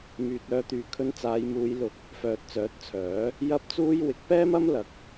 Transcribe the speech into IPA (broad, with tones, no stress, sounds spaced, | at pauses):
m yː˨ t̚ œː˧ t̪ yː˨ kʰ ɵ˧ n t͡s aː˨˧ j m uː˨˧ j l ʊ˧ k̚ | f œː˨ t̚ t͡s œː˨˥ t̚ t͡sʰ œː˨˥ | j ɐ˥ p̚ t͡s uː˥ j w ɪ˨˥ k̚ p ɛː˥ m ɐ˥ m l ɐ˨˥ k̚